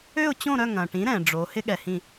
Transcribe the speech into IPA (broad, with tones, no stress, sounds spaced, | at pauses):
ø˦˨ ʊ̯ t͡ɕ õ˦˨ ɾ œ˦˨ ŋ ɐ̃˩ ʈ ĩ˩˧ ɾ ɛ̃˩ ɖ͡ʐ o˩˧ h ɪ˦˥ ɠ ɛ˩ h ĩ˦˨